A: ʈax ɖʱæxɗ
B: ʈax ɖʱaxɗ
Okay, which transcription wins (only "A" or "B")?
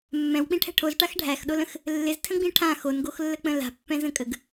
A